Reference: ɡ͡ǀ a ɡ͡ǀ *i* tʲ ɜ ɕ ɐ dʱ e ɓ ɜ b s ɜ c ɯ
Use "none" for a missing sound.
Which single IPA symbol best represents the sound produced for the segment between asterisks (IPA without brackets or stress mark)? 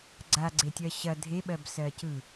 e